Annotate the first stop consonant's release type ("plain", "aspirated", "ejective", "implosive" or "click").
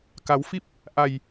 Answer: plain